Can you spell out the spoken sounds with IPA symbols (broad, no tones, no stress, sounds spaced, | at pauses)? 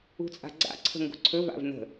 ṳ t͡sʼ a̤ ɡ͡ǀ a̰ ǀʰ ə̤ ŋ ɡ ṳ ǀʰ ɵ v a̰ v n ə̤